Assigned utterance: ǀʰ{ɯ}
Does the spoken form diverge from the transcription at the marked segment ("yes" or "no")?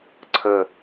yes